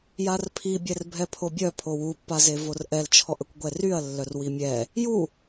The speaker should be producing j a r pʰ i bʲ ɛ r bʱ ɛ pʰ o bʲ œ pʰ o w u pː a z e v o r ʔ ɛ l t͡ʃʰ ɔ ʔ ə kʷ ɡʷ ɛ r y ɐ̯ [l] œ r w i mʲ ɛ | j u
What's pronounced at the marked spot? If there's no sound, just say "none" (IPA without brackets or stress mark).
lː